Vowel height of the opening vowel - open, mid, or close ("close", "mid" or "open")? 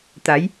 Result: open